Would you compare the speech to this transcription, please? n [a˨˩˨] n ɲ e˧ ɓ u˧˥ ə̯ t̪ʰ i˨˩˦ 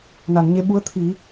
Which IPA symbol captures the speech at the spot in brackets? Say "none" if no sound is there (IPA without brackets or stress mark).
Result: a˨˩˨